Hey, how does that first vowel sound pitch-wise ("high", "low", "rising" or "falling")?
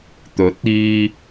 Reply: rising